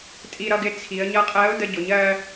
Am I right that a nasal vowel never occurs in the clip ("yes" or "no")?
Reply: yes